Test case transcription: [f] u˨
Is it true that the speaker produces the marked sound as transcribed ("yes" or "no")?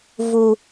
no